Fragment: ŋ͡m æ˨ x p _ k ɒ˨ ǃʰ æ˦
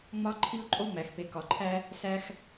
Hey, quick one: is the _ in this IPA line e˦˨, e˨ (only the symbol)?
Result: e˨